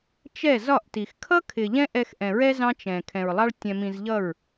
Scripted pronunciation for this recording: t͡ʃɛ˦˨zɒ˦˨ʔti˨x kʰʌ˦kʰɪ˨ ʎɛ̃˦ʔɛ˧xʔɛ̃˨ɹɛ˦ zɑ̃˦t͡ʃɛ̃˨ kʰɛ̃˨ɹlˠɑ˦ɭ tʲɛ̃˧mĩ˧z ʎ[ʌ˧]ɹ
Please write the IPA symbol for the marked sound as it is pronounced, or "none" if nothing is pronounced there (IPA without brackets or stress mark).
ʌ˦˨